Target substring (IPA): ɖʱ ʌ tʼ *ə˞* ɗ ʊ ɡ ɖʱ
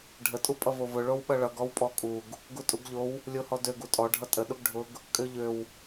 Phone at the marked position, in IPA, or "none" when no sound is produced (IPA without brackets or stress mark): ə